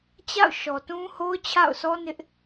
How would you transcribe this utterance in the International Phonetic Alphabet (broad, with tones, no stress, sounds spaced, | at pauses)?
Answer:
t͡ɕ a̰˦˨ ʊ̯ ʃ ɔ˨ t ũ˦ h o˦ ʊ̯ t͡ɕʰ a̰˦˨ ʊ̯ sʰ ɔ˦ n ɪ˦ ʔ